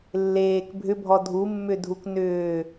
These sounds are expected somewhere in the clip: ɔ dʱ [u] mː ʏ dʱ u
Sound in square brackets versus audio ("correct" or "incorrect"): correct